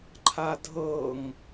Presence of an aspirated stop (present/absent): present